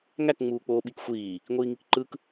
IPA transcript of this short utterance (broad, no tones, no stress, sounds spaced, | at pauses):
ŋ æ k ŋ͡m uː k͡p oː ɓ i k xʷ iː | ŋʷ iː ŋ i k ǃ ɯ k